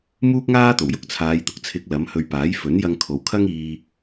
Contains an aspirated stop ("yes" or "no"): yes